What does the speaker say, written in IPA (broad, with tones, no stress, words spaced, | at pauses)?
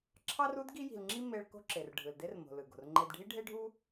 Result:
ǁʰɑ˥ru˥d ɡi˥ ji̤˧lŋ͡ǁi˥ me˧ɭ ko̤˥ǁe˩r ɖʱɯ˩lde˥rmo̤˩ lɯ˩ ɡo̤˩rŋ͡ǃe˧dɖʱi˥ ɖʱe˥ɖʱu˥